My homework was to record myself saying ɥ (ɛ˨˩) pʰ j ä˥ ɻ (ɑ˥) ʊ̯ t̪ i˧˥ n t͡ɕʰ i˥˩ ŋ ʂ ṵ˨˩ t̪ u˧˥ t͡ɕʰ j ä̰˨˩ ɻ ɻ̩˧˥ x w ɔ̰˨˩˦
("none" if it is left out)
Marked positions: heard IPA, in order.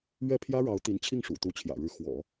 ɛ˥˩, ɑ˧˥

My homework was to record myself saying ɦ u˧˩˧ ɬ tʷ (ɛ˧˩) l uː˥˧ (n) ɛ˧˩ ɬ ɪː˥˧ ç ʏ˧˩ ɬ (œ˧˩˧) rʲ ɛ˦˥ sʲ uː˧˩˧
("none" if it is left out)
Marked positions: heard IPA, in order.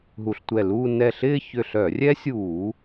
ɛ˧˩, n, œ˧˩˧

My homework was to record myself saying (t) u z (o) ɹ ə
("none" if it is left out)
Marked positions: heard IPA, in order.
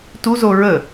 t, o

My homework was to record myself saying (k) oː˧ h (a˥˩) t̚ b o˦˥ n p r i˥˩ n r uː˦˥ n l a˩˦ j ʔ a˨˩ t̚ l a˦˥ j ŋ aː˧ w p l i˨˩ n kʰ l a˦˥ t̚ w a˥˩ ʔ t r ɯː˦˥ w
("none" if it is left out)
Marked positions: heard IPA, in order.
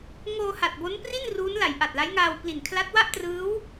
ŋ, a˨˩

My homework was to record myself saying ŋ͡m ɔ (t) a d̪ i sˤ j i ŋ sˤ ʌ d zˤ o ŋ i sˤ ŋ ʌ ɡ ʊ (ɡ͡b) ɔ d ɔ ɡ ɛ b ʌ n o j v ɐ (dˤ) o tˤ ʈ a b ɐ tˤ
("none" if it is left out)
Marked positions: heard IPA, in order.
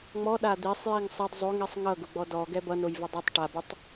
ɗ, ɡ͡b, dˤ

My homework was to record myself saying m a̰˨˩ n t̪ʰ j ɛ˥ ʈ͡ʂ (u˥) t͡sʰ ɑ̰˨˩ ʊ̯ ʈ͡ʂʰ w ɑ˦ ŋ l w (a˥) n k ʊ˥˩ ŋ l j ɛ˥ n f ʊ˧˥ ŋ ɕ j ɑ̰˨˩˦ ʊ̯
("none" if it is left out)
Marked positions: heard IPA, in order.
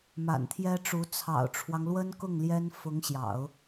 u˧˥, ə˥

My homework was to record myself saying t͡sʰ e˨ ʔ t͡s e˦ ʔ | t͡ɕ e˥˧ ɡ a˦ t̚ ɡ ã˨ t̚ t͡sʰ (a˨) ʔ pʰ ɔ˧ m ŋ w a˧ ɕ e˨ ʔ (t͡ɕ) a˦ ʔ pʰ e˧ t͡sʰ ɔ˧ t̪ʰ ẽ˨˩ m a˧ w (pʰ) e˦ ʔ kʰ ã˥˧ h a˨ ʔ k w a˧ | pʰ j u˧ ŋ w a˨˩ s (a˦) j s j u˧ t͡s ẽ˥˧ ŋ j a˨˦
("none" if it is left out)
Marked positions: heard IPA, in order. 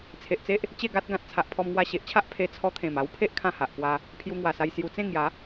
a˨, t͡ɕʰ, pʰ, a˧

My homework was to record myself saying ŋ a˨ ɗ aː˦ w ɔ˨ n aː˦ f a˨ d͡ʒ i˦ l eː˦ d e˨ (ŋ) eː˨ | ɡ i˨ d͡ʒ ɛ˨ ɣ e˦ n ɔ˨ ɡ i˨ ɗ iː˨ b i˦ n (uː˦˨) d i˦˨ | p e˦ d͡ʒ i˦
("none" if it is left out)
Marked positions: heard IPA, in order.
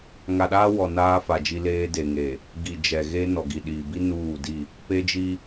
ŋ, uː˦˨

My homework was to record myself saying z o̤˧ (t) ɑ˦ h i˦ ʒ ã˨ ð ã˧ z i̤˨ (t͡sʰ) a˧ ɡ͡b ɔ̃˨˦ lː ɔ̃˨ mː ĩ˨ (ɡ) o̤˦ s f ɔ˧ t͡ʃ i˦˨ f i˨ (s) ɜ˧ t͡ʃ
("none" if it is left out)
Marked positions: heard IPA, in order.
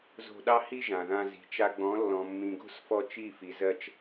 ɗ, t͡ʃ, ɡ, z

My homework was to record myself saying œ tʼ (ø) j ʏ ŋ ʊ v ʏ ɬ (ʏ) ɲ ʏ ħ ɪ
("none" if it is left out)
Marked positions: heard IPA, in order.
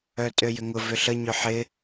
ø, ə

